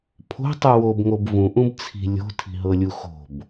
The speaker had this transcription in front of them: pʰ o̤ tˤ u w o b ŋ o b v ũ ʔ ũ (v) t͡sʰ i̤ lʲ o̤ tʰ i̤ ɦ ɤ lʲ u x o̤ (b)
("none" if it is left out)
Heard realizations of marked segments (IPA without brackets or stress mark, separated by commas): b, b